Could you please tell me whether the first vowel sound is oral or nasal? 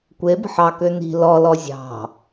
oral